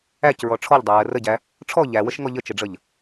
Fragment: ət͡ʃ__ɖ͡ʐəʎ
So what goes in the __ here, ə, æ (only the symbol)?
ə